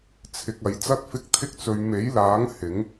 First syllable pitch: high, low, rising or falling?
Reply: low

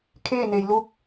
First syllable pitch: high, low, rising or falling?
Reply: falling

